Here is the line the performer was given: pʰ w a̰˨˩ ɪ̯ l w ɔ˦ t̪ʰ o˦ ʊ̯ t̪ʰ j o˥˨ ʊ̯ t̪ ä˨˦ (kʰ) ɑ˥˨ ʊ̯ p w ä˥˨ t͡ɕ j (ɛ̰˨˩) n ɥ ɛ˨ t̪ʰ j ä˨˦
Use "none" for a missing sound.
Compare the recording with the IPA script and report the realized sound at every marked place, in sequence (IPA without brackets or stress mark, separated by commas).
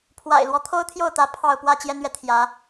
pʰ, ɛ˦